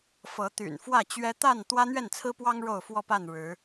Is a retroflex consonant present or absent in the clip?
present